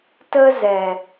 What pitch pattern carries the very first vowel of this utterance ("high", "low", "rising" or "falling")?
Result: high